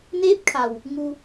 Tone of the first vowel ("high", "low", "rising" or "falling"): rising